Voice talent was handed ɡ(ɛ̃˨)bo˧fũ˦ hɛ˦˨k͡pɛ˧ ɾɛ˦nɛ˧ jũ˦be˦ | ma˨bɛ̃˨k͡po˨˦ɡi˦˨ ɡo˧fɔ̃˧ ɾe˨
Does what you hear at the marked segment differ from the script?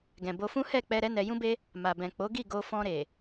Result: no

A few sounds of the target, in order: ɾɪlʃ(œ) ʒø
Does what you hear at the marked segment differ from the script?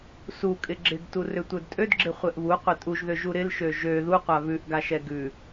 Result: yes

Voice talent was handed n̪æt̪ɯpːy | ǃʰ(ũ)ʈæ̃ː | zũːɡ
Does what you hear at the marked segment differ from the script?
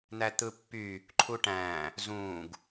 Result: yes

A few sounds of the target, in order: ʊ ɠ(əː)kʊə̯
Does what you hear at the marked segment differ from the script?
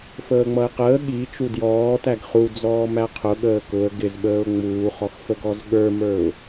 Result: no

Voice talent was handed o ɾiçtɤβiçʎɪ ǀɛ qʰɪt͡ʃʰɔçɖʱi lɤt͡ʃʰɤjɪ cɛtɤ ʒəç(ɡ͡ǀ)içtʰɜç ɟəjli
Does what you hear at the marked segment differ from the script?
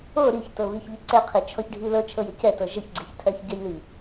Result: no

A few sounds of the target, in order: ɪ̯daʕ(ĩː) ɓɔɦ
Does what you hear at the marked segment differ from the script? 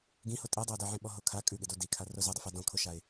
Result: yes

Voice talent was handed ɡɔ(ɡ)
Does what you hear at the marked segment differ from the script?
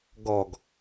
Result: no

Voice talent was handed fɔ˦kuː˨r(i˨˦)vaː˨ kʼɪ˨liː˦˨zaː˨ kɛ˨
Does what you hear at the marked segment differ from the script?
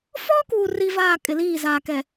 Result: yes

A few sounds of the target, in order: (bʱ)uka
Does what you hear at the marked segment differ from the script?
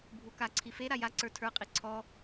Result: no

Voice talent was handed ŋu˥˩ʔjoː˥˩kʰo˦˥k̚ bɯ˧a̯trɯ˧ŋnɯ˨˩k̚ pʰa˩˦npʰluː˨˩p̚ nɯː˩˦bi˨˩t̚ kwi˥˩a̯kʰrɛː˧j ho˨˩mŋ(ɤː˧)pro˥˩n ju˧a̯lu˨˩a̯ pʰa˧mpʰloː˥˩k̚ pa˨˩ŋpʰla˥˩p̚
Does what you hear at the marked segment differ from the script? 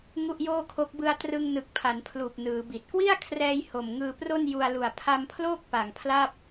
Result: yes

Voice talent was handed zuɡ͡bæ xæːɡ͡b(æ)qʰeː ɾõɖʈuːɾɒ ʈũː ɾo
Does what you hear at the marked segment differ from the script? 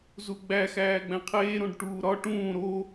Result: yes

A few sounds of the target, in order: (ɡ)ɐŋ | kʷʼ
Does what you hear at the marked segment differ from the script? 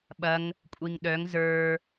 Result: yes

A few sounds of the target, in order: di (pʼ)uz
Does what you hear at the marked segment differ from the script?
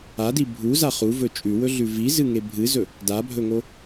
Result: yes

